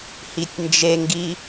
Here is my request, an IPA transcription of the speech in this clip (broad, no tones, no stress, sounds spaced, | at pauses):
h i tʲ n d͡ʒ e ŋ ɡ i